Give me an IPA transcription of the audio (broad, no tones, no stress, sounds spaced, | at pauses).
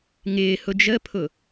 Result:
ŋ ɪː h ʊ d͡ʒ ə pʰ ʊ